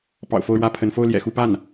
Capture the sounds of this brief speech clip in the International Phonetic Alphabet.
p ɑ̰˨˩ ʊ̯ f o˥˧ ʊ̯ ɻ w ä˥˩ pʰ ə˧˥ n f o˥˩ ʊ̯ l j ɛ̰˨˩ x u˥˧ p a˥˩ n

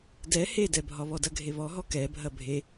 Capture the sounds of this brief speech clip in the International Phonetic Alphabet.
d ɛ h e d ɛ bʱ ɒ β ɔ d ɐ ɡʱ e β ɔ ɦ ɔ k ɛ bʱ ɐ bʱ e

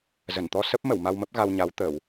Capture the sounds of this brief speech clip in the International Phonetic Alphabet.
z ə˧˩ n t̪ ɔ˧ s ə˦˥ p̚ m ə˧˩ w m a˧ w m ə˦˥ p̚ ɣ a˧ w ɲ a˨˦ w t̪ ə˧˩˨ w

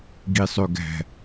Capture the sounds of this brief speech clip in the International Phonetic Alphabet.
ɡ i sˤ ø ɡ æ̤

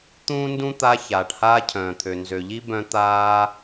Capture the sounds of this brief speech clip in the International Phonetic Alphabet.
t̪ ũː˥ n d ũ˥ t̪ a˦ ç aː˩ ʈ h aː˦ cʰ œ̃ː˩ t̪ʰ ø˩ n z ø˩ ʎ i˦ b œ̃˦ t̪ aː˦

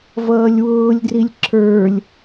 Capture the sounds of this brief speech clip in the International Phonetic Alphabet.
v ʌː lʲ w ʊː lʲ d r i lʲ ǁ ə˞ lʲ

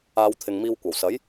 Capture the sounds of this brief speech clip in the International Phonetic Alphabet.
aː˨˧ w t̪ʰ ɪ˨ ŋ m iː˧ w kʷ ɐ˨˩ w s ɐ˨˥ j

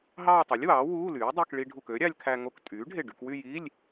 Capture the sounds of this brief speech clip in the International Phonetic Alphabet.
ɦ ɑː˥˧ tˤ u˩˥ lʲ w ɑː˩˥ w uː˧˥˧ l yː˩˥ dˤ e˧˥˧ k ɭ i˧ ɖʱ u˧˩ k ø˩˥ ɾʲ ɑ˧ lʲ kʰ æ˧ ŋ o˧ k tʼ yː˩˥ ɖʱ e˧˩ ɖ y˧ k w y˥˧ j i˧˥˧ lʲ

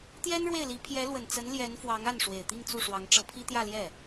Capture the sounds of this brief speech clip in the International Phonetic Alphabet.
t̪ j ɛ˥ n ɻ w e˥˩ ɪ̯ l i˧˥ pʰ j ɛ˧˥ l w ə˨˩ n t͡s ə˧˥ n l j ɛ˧˥ n f w ɑ˧˥ ŋ a˥˩ n ʂ w e˨˩ ɪ̯ t̪ i˥˧ ŋ t͡s u˥˩ ʂ w ɑ˧˥ ŋ ʈ͡ʂ ɤ˧˥ pʰ i˥ t̪ j ä˥˧ l j ɛ˥˩

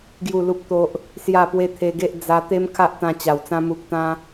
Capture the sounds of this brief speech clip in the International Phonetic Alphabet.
ɡ j u˥˧ l u˦ p̚ t̪ o˦ ʔ | s j a˥˧ p w e˦ t̪ʰ e˧ ɡ e˦ ʔ d͡z a˧ t̪ e˦ m kʰ a˦ ʔ t̪ ã˧ t͡ɕ a˨˩ w t͡s ã˧ m u˨ k̚ t̪ ã˧

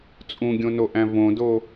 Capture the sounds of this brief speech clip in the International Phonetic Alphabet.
t͡sʼ ũ ɡʲ õ n o ʔ æ̃ v õ d o

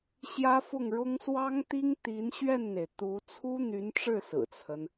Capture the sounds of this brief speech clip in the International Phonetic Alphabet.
ɕ j ä˥ f ʊ˥˩ ŋ ɻ ʊ˥ ŋ s w ɑ˥ ŋ t̪ i˥ ŋ t̪ i˧˥ n ɕ ɥ ɛ˥˩ n n̪ e˩ ɪ̯ t̪ u˧˥ t͡sʰ u˥ n̪ y˧˥ n ʈ͡ʂ ɻ̩˥˩ s ɹ̩˨˩ t͡sʰ ə˦ n

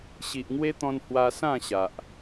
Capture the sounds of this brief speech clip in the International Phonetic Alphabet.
ɕ i˨ ʔ ŋ w e˦ t̪ ɔ̃˧ n h w a˧ s ã˥˧ ɕ a˨ ʔ

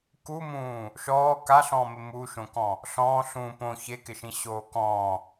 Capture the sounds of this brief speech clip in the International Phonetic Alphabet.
k u m ũː | ʃ ɔː k a ɬ ɔ̃ː m ɪ m u ʃ õ k ɔ̃ | ɬ ɔ̃ː ɬ ũː p õ ç e k ɪ ʃ ĩ ɕ oː k ɔ̃ː

